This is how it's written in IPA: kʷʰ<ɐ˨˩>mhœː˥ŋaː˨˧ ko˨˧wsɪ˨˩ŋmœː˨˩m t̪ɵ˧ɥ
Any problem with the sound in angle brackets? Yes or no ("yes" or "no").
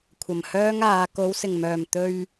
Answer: no